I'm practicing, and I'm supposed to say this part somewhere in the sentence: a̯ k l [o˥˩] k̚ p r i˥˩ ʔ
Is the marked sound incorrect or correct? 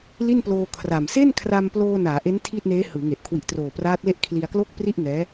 correct